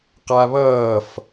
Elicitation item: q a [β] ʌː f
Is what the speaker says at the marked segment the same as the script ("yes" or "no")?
yes